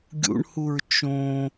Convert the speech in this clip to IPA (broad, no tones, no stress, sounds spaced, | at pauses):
ɡʲ ṵ ɳ h u ɹ t͡ʃ õ